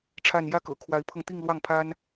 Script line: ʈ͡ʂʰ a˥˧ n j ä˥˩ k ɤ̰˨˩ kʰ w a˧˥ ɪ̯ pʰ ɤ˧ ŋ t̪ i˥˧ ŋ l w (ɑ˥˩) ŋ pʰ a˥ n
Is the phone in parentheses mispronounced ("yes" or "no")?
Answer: no